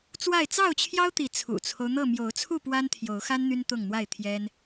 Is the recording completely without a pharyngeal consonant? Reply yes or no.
yes